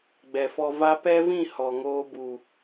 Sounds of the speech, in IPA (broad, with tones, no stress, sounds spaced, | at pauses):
ɡ͡b ɛ˨ f ɔ˧ v a˧ p ɛ˦ v ĩ˦˨ h ɔ˨ ŋ oː˧ b u˨